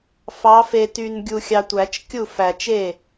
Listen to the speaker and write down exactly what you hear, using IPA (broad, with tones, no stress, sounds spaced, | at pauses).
f ɑ˨˦ f e˨ t y˨ n ɡʲ u˨ xʲ ɑ˨ tʷ æ˨˩˦ t͡ʃ kʲ u˥˩ f æ˨ t͡ʃ e˥˩